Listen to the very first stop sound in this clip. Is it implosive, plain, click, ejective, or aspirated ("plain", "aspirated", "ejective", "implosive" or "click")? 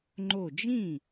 click